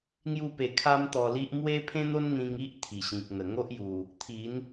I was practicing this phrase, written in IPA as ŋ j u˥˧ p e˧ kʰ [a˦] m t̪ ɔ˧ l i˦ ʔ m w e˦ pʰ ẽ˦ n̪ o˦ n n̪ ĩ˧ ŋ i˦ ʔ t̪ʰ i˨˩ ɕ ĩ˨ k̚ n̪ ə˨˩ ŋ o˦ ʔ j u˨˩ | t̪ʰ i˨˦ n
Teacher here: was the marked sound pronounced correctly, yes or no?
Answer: yes